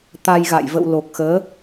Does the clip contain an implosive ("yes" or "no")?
no